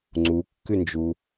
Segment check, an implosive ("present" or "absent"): absent